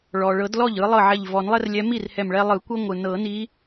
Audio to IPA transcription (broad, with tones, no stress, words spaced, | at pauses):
ɭɔ˩ɭɤ˨˩˦dlɔ˥˩ʎ ɯ˨˦lˠɤ˥˩ʕɛ˧˩ʎvɔ˨˩˦n lˠɛ˦rlʲɛ˨˦mi˥˩r hɛ˧˩mɭɛ˦lˠɯ˨˩˦ kʷɤ˦ŋʷɯ˩ nɤ˨˩˦ni˨˦